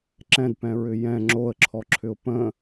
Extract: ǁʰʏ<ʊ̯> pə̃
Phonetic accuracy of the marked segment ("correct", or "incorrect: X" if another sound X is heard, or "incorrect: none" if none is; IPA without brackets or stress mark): correct